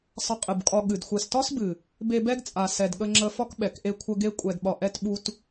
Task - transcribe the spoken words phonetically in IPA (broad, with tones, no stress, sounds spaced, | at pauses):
sˤ ə˧ qʼ ɨ˨ b kʼ ɒ˧ ɠ ɨ˨ d xʷ ɛ˨ s t ɒ˦ s b ɨ˨ | b e˧ b ɛ˦ ɡ t͡sʼ a˨ s ɛ˨ d ɠ ə˧ ŋ͡ǁ ə˧ f ɒ˦ k ɓ ɛ˨ k ʔ e˦ kʷʰ ə˦ ɡ e˧ kʷʼ ɛ˨ d ɓ ɒ˨ ʔ ɛ˦ t ɓ u˦ t